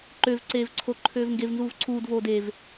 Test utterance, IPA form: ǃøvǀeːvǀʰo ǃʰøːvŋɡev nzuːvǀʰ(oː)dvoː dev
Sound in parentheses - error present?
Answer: yes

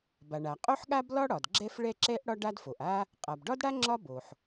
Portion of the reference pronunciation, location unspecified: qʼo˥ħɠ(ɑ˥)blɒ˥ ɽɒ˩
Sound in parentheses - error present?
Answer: yes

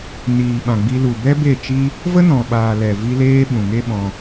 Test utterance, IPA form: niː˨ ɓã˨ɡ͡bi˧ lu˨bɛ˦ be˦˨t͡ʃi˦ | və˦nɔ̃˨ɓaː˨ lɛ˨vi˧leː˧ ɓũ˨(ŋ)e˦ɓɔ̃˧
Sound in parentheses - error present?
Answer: no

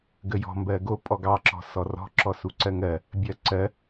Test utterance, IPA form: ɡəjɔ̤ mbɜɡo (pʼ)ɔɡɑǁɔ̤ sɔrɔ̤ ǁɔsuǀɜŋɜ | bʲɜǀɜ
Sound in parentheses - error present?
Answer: no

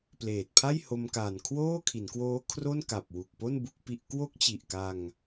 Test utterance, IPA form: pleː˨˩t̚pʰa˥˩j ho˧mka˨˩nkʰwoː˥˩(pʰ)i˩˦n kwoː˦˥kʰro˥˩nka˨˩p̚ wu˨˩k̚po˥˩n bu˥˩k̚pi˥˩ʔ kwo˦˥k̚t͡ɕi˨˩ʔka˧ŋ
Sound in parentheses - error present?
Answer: yes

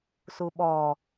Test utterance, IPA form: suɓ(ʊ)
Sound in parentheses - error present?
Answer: yes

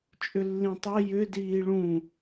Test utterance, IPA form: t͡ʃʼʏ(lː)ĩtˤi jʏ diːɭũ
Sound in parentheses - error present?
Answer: no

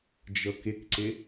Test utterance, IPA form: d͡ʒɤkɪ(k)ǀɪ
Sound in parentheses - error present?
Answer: no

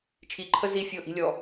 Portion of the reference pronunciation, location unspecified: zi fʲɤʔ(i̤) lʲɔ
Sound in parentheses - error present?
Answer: no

